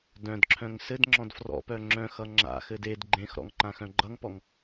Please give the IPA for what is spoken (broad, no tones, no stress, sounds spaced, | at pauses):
d œ̃ d ǁʰ œ̃ ŋ s ɘ d ŋ͡ǁ ɔ̃ d f r ɔ̰ p œ ŋ͡ǁ œ̃ x ʌ ŋ͡ǁ a̰ x ɘ d e d ɡ͡ǃ ẽ x ɾ ɔ̰ ŋ ǃ ã x œ̃ ɡ͡ǃ ʌ ŋ p ɔ ŋ